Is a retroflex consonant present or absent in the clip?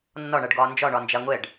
present